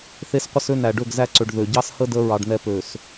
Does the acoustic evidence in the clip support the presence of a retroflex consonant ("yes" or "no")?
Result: yes